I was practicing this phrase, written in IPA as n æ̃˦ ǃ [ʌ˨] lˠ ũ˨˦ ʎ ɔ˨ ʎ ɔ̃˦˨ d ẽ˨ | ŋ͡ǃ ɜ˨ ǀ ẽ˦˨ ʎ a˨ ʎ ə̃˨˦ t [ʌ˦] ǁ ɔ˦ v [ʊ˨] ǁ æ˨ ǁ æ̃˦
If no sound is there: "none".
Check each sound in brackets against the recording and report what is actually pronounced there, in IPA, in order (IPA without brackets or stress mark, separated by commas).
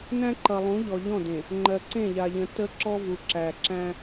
ʌ˨, ə˦, u˨